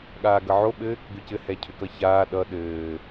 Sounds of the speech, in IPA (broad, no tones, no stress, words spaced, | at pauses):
ɠaːɡʌʕo ɓɘːk ɡʏcɘ hɛcʰʏkʌçaː ɗʌ ɗɘː